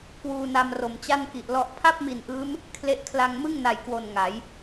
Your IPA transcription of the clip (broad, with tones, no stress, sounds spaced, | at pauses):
k w uː˧ n a˧ m r o˨˩ m t͡ɕ a˥˩ n k i˨˩ ʔ l ɔ˦˥ ʔ pʰ a˥˩ p̚ m i˨˩ n ʔ ɯː˦˥ m | kʰ l e˦˥ ʔ kʰ l a˧ ŋ m ɯ˥˩ ŋ n a˨˩ j k w o˨˩ n ŋ a˩˦ j